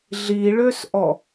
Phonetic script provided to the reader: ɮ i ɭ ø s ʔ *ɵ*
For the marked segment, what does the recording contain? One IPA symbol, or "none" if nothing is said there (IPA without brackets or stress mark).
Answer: ɔ